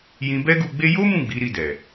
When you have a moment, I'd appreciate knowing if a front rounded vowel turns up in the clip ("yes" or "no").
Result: no